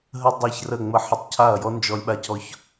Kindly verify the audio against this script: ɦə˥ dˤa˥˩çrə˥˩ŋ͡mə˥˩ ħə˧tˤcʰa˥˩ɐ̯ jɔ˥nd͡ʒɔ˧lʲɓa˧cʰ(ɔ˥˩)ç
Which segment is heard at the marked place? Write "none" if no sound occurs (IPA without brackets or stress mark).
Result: ɔ˧